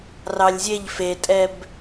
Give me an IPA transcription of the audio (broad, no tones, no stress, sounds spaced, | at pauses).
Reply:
r ɑ lʲ zʲ e ʎ f e tʼ ɛ b